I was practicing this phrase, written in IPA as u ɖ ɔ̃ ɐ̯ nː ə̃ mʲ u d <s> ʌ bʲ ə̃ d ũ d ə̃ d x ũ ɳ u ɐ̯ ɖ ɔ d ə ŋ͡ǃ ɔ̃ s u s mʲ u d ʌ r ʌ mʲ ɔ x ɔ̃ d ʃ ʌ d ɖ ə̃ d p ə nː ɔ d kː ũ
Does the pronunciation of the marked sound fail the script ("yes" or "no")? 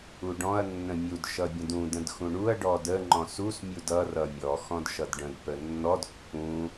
yes